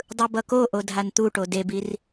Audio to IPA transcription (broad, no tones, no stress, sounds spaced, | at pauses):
dˤ ɯ b ʌ k o ʔ o dʱ a n t̪ u ʈ o d e b i r